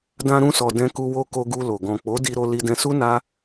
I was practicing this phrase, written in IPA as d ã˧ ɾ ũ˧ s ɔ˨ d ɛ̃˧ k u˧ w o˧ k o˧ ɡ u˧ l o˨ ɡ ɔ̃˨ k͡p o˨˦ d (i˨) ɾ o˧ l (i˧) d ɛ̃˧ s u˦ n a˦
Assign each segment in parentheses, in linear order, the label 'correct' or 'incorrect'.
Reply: incorrect, correct

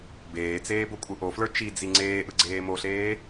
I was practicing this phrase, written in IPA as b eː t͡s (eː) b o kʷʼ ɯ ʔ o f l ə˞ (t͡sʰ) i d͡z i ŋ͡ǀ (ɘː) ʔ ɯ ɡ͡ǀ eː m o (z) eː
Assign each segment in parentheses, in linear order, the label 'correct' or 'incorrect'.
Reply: correct, incorrect, incorrect, incorrect

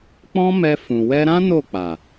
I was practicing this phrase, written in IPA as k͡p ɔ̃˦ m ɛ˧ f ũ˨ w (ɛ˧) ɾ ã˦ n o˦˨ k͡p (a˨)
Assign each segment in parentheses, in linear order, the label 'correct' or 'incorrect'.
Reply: correct, correct

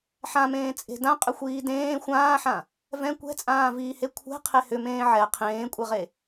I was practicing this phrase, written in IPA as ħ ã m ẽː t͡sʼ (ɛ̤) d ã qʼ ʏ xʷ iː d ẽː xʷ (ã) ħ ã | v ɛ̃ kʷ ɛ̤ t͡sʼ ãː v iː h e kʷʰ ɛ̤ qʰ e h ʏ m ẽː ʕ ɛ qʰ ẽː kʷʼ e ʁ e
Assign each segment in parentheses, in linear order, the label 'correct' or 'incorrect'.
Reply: incorrect, incorrect

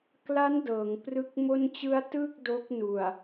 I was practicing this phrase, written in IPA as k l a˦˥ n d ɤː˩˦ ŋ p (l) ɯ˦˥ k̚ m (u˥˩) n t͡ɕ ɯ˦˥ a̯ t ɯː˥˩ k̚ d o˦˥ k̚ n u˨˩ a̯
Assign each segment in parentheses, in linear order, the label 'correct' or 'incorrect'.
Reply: incorrect, incorrect

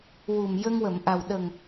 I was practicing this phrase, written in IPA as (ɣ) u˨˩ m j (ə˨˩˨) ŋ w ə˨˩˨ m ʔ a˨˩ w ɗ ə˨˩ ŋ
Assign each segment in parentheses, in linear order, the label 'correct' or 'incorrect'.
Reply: incorrect, incorrect

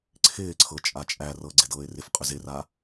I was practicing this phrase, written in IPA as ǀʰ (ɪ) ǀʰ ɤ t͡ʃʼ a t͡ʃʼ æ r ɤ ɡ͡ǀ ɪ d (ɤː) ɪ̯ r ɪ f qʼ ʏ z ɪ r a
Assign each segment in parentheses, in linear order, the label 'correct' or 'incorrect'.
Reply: incorrect, correct

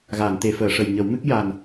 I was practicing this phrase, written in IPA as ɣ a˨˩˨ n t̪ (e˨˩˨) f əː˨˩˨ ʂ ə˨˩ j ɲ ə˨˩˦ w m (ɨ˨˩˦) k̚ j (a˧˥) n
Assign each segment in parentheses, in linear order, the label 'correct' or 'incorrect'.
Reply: correct, incorrect, incorrect

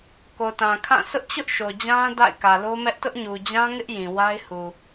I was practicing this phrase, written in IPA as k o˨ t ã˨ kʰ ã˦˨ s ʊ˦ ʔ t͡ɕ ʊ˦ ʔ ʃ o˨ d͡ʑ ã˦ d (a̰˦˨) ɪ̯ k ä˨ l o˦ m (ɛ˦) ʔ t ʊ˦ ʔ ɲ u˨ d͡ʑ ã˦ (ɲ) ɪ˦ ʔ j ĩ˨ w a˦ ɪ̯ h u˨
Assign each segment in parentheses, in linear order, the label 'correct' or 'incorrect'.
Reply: correct, correct, incorrect

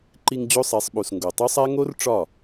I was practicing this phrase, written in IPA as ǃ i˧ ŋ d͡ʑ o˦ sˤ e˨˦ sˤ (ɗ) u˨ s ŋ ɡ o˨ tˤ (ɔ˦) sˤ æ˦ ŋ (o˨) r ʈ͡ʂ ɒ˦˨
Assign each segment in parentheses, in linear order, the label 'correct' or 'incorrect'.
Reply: incorrect, incorrect, incorrect

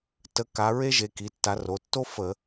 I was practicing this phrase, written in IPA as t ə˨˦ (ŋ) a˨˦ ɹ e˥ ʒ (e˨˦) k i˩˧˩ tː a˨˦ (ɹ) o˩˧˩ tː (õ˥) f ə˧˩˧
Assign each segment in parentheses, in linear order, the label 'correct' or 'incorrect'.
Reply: incorrect, correct, incorrect, incorrect

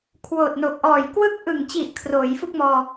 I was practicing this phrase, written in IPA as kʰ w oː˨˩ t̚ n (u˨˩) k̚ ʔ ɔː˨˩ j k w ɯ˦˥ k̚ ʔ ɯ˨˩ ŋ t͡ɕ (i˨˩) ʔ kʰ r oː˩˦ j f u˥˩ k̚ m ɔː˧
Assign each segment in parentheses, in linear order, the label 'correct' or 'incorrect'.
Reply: incorrect, correct

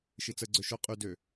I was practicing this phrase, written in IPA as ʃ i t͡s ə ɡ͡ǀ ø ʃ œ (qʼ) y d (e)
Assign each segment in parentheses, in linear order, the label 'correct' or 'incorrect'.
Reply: correct, incorrect

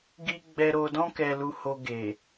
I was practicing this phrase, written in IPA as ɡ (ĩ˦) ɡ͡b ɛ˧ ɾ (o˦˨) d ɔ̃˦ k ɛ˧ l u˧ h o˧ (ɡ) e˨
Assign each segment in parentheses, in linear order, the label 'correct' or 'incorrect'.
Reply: incorrect, incorrect, correct

